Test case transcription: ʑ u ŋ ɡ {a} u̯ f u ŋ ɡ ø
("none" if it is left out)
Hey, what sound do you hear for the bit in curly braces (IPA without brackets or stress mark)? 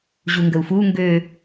ə